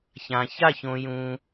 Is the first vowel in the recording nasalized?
yes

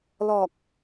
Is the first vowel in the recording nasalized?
no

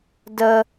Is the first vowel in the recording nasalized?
no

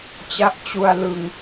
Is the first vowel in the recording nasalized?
no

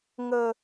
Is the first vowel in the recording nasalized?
no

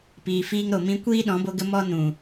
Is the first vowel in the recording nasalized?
no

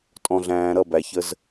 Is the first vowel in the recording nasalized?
yes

